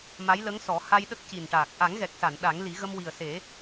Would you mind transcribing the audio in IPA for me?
m a˧˥ j l ə˧˥ ŋ s ɔ˨˩˦ h a˧ j ɗ ə˦˥ k̚ c i˨˩ n ʈ aː˨˩ k̚ ʔ a˨˩˦ ŋ ɣ ɛ˨˩ k̚ s a˨˩˨ n ɗ a˨˩˦ ŋ l i˨˩˦ ɣ ə˧ m w i˨˩ ə̯ s e˨˩˦

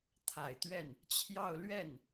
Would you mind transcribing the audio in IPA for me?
t̪ʰ a˨˩ ɪ̯ t̪ ɥ ɛ˥˩ n | t͡ɕʰ j ɑ˥˧ ʊ̯ l ɥ ɛ˥˩ n

